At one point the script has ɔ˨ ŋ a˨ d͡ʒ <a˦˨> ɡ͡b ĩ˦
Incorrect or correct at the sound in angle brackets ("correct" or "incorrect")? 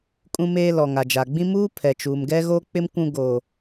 incorrect